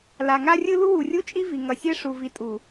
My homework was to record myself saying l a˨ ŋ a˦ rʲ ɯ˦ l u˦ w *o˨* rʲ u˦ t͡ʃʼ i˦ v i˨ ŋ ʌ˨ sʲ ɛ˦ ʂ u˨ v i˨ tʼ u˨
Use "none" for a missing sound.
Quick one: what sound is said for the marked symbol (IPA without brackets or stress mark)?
u˨